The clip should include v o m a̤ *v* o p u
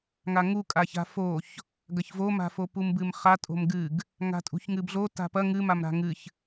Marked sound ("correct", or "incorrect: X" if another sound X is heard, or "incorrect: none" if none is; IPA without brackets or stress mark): incorrect: f